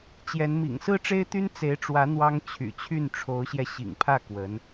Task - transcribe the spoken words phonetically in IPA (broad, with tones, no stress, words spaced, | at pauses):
t͡ɕjɛ˧˥n mḭ˨˩ŋsɹ̩˥ʈ͡ʂe˥ɪ̯t̪y˥n t͡se˧˥ɪ̯ʈ͡ʂwä˧˥ n̪wɑ˥ŋ t͡ɕʰy̰˨˩t͡ɕʰy˥˩n ʈ͡ʂʰo˧˥ʊ̯ɕjɛ˧ ɕḭ˨˩ŋpʰä˥˩ kwə˧˥n